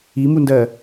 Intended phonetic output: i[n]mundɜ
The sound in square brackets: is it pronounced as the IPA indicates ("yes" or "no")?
no